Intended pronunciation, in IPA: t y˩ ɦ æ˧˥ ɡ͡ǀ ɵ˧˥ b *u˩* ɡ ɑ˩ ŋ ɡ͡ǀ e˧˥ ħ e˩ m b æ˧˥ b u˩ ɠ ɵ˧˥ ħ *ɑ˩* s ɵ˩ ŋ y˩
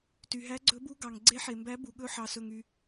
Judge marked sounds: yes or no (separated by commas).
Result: no, yes